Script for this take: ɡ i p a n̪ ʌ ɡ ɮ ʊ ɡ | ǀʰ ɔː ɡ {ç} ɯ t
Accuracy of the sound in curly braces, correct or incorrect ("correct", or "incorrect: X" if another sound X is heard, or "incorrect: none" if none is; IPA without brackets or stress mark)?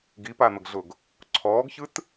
correct